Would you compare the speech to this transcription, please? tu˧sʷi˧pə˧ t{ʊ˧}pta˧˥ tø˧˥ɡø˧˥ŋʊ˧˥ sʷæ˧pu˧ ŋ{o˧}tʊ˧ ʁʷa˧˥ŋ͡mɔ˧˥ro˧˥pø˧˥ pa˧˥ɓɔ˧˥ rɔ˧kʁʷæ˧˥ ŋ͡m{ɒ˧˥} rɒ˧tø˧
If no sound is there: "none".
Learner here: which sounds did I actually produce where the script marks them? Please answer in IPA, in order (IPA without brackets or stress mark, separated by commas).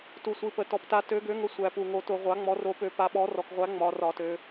ɔ˧, o˧, ɒ˧˥